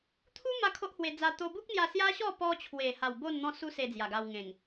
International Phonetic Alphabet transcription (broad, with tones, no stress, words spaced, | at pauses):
t̪ʰu˦ ma˦kʰo˦ʔhwe˧d͡za˧ t̪o˧bu˦k̚n̪ja˧ sja˦ɕɔ˥˧ pɔ˧ t͡ɕʰwe˨˩ha˨˩w bo˥˧nn̪ɔ̃˦su˦ se˧d͡zja˨˩ɡa˧wŋẽ˨˩ŋ